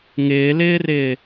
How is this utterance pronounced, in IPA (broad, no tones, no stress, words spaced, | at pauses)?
ŋɪːlɪːrɪː